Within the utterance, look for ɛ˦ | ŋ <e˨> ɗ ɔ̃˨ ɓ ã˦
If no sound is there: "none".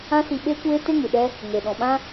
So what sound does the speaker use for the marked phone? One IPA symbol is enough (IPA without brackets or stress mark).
e˨